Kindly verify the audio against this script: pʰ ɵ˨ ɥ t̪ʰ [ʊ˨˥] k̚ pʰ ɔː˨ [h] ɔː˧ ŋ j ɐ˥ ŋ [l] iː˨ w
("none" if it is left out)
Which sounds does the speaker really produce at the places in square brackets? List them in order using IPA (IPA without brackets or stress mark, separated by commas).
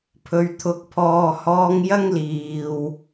ʊ˨, h, l